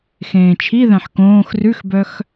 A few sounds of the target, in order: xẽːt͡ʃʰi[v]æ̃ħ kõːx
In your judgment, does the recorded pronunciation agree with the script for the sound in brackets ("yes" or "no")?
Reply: no